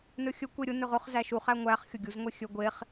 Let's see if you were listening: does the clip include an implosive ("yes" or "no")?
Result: no